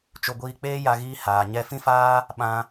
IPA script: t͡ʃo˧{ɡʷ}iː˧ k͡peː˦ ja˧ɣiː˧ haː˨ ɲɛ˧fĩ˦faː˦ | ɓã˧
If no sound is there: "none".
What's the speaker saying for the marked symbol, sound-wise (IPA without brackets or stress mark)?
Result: ɡʷ